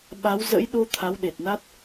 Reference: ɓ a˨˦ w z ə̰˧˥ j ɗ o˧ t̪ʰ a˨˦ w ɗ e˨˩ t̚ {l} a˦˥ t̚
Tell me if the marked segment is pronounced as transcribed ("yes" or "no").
no